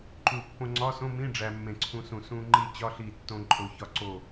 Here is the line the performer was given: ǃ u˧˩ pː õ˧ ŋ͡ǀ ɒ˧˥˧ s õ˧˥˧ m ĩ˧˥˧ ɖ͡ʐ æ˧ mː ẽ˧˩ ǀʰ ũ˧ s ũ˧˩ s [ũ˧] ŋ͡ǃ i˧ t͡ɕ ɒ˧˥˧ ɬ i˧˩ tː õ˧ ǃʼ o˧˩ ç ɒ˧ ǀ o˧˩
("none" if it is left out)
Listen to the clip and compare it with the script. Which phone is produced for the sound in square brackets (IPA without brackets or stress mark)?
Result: ũ˧